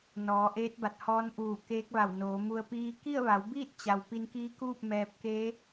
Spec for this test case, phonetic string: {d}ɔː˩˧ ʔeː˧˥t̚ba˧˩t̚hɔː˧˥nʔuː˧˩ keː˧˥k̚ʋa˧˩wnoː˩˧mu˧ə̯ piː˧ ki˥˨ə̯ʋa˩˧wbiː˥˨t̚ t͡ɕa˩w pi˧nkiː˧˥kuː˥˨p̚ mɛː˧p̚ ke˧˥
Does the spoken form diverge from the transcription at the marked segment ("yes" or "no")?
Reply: yes